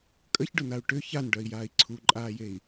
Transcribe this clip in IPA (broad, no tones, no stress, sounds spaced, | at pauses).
kʼ ə ç ɖ ʊ n a u̯ ʈ ʏ ç a n ɖ œ i̯ j aː i̯ ǀʰ u ǃʼ aː j e i̯